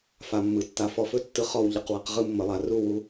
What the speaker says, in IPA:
f a˨ mː ɯ˨ tː a˧ f ɔ˧ f ɵ˦ tː ɯ˧ χ ɔ˦˨ w ʎ ə˦˨ q w a˧ q ʁ ɯ˦ mː ə˨ lˠ a˨ r u˦˨ w u˧

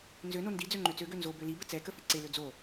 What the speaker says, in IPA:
n z ø n o n d i d͡z ø ŋ͡ǃ ø t͡s ø ɡ ø n z o b ø l i b ə t͡s ɛ k ə f i ǀ e l ø d͡z o

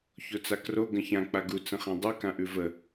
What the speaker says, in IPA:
ç o t͡s a k r o ɡ ə̃ ç ã k͡p a ɡ u t͡s ə̃ χ ã dˤ ɯ k ã ʔ ʉ v ə

